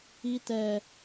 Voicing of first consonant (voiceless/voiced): voiceless